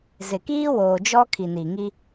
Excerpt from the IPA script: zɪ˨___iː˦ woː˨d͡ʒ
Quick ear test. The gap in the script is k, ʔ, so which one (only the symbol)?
k